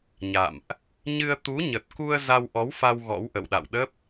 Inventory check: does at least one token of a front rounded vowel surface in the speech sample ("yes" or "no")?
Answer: no